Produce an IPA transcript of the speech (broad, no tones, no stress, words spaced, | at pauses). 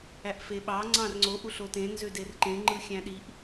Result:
æʔfeɓɑ ŋ͡ǀɑ̃rŋ͡ǀo ʔuɬotẽ nzøderǃẽ ŋ͡ǃɯxʲæ̃ɗiʔ